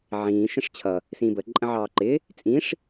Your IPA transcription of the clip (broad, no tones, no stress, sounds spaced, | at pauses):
ʕ ĩː ʃ ə̃ ʂ t͡ɕʰ ʌ | s ĩː b ə ǃʼ ə̃ ʕ ɑː ǃ ɪː | t͡sʼ ĩː ʂ